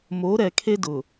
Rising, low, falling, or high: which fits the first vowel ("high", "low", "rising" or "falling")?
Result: rising